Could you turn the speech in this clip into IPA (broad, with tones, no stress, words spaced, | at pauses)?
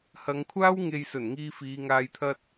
hɐ˨˧ŋkʷʰaː˥w ŋe˨jsɵ˨˩n ŋiː˧fiː˨˧ŋaː˧jt̪ʰɐ˥t̚